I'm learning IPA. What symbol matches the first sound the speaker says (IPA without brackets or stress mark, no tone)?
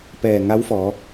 p